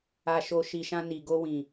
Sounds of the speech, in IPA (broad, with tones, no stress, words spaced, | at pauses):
a˧ʃo˧ ʃi˨ʃã˧ ni˨ ɡo˧wĩ˨